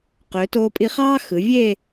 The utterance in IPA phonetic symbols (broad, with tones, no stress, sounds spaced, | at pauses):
q ø˩˧ t o˧ pʼ i˧ χ ɑː˥ x ɯ˩˧ vʲ e˥˧